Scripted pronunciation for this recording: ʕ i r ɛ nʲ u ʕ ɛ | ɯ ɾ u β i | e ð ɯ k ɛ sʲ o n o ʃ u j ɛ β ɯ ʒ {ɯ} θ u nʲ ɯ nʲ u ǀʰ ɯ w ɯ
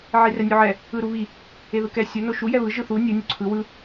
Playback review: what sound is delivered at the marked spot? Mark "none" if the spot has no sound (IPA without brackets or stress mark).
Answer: ɯ